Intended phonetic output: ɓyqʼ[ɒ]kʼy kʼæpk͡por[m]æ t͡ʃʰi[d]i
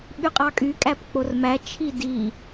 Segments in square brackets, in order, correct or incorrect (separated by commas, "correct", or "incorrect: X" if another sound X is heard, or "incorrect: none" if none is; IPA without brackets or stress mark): incorrect: ɑ, correct, correct